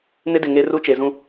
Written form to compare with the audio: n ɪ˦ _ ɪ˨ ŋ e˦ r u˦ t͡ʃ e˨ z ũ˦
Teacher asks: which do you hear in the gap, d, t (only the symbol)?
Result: d